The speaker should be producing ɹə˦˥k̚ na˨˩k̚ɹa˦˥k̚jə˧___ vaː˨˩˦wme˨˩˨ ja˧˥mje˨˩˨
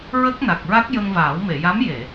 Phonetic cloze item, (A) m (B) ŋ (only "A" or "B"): B